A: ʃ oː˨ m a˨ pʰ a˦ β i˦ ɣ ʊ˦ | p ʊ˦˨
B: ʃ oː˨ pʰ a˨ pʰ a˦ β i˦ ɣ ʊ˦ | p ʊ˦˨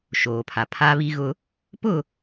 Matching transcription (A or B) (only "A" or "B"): B